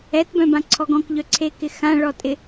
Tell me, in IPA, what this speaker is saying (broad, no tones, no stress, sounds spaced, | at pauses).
ɛ t b œ̃ b ã ǀʰ ɔ ɡ ɔ̃ k ʎ œ ǀʰ e k ɪ x ã ɭ ɔ tʼ ɪ